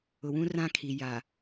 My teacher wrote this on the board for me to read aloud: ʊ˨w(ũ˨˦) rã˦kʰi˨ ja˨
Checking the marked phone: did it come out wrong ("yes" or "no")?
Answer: yes